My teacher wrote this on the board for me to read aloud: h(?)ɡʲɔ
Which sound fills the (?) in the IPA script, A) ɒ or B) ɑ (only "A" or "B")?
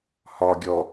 A